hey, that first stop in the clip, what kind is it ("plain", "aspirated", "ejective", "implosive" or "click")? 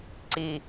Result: click